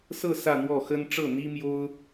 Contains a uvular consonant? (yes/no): no